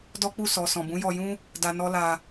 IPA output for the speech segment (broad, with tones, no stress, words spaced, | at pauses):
dɔ˦k͡pu˦˨ sɔ˨ sɔ̃˨bũ˨˦jɔ˧jũ˦ | da˧nɔ˦la˧